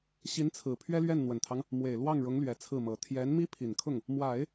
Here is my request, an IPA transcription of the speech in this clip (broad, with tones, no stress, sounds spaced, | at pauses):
ɕ i˧˥ n t͡sʰ ɹ̩˨˩ pʰ ɥ ɛ˥ l ɥ ɛ˥˩ n n̪ w ə˨˩ n t̪ʰ ɑ˦ ŋ | m w e˨˩ ɪ̯ l w ɑ˥˩ ŋ ɻ ʊ˧˥ ŋ l ɥ ɛ˧˥ t͡sʰ ɹ̩˥˩ m ɤ˨˩ t̪ʰ j ɛ˧˥ n m i˥ pʰ i˨˩ n kʰ ʊ˥˩ ŋ | m w a˨˩˦ ɪ̯